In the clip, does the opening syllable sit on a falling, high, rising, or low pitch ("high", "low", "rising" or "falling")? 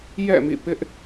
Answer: falling